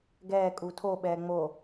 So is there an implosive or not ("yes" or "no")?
yes